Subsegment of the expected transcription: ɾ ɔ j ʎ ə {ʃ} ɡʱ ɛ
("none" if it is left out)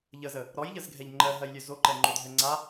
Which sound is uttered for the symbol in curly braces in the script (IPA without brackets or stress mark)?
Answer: z